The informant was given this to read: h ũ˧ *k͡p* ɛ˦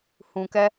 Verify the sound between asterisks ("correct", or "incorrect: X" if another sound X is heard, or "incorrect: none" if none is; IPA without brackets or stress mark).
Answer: incorrect: k